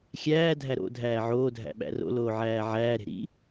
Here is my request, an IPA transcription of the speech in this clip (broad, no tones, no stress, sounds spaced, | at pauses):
xʲ æː dʱ æ ɾ o̰ dʱ æː ʕ oː dʱ æ̰ ɓ æ̰ r o̰ l oː ʕ æː ʕ æː ɾ e̤ ɾ ḭ